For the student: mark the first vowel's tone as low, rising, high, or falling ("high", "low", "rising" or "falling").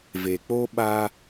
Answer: low